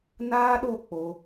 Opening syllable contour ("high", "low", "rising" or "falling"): high